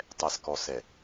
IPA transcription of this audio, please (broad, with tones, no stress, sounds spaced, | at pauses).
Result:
tˤ ɛ˨ s k ɔ˨ s ɛ˨